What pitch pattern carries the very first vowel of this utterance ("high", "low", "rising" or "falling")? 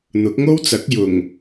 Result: rising